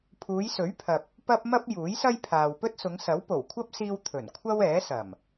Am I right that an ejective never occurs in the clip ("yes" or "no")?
yes